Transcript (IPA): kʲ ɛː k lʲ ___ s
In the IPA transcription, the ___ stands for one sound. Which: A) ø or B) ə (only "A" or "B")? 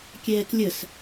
B